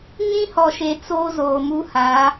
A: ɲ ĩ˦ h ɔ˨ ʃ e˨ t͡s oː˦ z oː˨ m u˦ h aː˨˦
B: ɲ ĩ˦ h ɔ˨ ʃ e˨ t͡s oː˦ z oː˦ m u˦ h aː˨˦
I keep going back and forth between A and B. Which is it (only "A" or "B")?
A